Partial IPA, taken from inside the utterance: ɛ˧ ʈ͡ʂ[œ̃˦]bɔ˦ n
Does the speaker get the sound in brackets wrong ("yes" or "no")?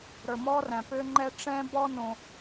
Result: yes